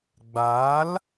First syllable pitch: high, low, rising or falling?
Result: rising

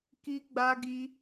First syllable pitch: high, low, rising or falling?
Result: high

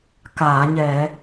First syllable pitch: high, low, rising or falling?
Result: low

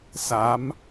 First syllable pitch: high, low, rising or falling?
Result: rising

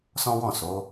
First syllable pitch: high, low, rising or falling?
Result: high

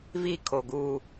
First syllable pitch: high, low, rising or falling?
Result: high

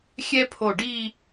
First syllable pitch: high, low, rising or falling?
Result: high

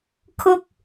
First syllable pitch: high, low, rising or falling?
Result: high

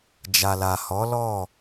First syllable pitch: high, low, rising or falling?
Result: low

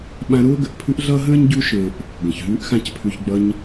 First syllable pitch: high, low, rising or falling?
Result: high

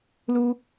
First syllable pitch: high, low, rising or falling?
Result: high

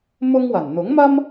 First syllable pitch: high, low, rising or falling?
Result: high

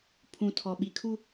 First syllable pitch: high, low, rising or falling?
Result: low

